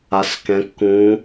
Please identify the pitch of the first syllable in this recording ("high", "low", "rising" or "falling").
rising